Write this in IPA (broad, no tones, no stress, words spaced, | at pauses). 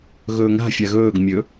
ɣɵːŋa̤ fʲaɣɵːɡ mʲɵ